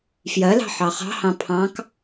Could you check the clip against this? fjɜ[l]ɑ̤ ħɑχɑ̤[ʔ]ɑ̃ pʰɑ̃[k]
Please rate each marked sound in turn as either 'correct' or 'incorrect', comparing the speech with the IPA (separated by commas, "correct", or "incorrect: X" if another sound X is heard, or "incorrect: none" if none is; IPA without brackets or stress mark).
correct, incorrect: h, correct